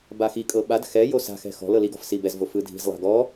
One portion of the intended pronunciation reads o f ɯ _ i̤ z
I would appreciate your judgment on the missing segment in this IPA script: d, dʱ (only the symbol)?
dʱ